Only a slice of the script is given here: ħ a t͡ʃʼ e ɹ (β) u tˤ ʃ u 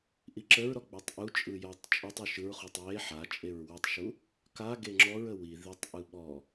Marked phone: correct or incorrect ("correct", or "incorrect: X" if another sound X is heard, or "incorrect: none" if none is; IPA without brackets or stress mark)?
incorrect: w